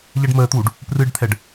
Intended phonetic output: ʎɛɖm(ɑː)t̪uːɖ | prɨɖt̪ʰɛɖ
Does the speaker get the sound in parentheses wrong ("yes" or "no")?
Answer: yes